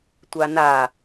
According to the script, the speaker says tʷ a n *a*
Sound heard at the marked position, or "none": a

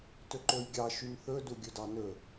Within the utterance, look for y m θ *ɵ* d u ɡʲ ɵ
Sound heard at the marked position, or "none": ɵ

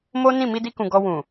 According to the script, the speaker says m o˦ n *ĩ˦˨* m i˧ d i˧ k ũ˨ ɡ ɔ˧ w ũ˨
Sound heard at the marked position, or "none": ĩ˦˨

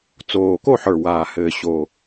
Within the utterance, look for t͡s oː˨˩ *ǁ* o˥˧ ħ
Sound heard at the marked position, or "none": k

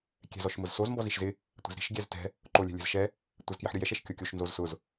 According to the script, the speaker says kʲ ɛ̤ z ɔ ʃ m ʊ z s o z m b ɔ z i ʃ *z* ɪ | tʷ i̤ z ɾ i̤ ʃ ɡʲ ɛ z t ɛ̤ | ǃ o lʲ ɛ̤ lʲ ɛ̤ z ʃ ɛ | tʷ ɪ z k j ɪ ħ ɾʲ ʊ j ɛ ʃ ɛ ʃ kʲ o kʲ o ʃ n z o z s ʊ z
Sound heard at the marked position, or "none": z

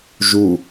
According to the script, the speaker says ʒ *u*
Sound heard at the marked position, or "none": u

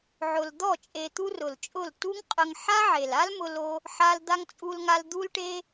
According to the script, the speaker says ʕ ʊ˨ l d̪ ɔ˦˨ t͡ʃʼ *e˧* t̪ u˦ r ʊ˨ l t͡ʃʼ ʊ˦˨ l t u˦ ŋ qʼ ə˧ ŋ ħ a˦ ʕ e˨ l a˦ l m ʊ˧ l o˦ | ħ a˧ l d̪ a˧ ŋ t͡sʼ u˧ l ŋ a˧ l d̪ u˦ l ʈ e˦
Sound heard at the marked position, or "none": e˧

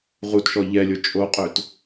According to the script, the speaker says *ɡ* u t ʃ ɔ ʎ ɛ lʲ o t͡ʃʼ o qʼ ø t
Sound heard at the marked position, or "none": ʁ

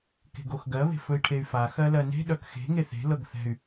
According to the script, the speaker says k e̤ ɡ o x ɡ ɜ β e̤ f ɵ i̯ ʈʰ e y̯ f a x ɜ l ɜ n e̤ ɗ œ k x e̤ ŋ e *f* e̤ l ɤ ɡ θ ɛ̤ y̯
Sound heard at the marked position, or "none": θ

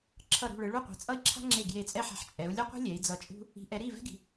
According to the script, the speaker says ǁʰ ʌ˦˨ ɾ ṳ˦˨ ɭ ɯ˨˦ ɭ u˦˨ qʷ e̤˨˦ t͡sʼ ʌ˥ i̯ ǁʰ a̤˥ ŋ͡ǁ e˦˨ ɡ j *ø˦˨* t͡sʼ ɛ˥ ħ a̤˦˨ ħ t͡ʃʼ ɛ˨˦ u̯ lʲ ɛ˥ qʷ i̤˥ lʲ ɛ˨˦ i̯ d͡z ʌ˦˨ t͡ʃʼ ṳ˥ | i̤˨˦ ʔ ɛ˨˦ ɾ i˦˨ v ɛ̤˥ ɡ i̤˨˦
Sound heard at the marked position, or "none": e˦˨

